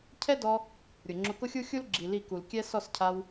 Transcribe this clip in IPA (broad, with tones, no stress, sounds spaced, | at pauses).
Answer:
cʰ ɛ˦ d ɔ˧ | ɾʲ ʊ˨ ŋ͡ǁ ʊ˧ k ʊ˦ xʲ u˦ xʲ u˦ l ɡ͡ǁ i˨ l i˦˨ k u˨ l kʲ ɛ˦ s ɔ˦˨ s cʰ a˧ w